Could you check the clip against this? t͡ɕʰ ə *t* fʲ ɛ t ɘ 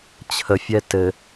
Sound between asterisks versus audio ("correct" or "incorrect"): incorrect